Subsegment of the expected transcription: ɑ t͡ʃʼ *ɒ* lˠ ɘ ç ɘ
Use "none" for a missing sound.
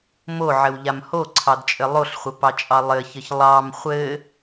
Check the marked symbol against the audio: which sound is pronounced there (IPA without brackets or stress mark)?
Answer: ɑ